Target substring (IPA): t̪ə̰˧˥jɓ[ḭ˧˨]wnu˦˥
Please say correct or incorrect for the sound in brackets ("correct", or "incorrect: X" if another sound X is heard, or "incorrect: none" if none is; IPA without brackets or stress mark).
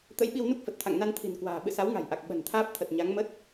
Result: incorrect: i˧